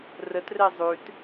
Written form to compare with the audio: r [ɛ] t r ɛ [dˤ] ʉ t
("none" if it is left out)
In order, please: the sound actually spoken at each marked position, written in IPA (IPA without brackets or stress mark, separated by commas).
ə, zˤ